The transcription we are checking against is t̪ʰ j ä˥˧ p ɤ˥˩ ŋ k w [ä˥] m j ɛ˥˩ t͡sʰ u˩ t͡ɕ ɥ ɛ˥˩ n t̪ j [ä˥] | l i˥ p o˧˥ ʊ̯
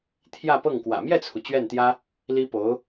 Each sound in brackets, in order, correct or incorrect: incorrect: ä̰˨˩, correct

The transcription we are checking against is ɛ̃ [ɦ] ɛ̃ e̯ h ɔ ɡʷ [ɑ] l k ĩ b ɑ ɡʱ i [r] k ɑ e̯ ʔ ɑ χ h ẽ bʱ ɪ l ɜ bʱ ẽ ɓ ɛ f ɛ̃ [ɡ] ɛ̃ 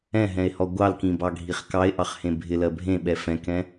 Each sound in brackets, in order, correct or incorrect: correct, correct, incorrect: χ, incorrect: k

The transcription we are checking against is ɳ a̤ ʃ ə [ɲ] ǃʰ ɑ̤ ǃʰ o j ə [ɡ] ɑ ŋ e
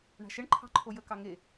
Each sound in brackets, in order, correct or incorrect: incorrect: ɳ, incorrect: k

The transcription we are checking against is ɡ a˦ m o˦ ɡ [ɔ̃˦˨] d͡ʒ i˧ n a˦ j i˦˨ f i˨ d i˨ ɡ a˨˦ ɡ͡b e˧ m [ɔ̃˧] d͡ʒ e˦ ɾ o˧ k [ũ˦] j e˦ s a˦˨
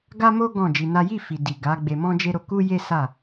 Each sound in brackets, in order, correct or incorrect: correct, incorrect: ɔ̃˦, incorrect: u˦

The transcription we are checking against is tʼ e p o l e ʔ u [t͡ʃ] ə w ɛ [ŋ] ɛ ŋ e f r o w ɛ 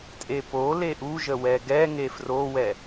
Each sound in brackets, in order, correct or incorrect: incorrect: ʒ, incorrect: ɡ

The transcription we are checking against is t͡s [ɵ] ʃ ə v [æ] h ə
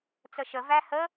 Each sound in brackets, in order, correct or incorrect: incorrect: ə, correct

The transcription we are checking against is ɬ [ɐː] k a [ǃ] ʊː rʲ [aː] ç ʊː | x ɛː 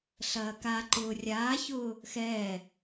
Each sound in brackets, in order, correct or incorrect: correct, correct, correct

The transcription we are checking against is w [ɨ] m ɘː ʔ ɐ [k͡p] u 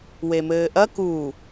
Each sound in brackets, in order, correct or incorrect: incorrect: e, incorrect: k

